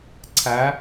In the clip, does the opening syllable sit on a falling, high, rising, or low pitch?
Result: rising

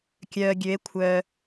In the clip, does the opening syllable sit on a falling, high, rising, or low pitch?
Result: low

